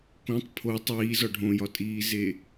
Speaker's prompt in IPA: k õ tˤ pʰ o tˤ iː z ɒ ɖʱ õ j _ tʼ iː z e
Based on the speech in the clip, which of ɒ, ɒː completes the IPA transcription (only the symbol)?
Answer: ɒ